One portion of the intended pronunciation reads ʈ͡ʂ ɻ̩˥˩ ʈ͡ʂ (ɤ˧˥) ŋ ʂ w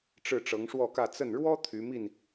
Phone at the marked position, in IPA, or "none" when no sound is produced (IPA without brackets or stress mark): ɤ˧˥